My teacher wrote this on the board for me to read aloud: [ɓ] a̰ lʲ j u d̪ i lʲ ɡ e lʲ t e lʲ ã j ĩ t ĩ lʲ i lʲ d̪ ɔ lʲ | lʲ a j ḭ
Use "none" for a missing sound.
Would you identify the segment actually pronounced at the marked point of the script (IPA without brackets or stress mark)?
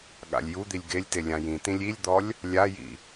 ɠ